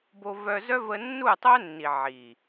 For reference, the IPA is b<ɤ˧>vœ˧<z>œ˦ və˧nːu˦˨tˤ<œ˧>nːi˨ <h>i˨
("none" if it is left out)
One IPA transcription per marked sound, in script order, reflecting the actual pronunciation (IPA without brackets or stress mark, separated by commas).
o˧, z, œ˦, ʕ